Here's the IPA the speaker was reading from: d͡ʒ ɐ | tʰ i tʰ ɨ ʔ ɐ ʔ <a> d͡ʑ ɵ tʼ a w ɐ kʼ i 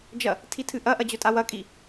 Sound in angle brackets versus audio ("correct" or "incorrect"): incorrect